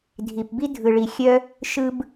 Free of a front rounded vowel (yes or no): no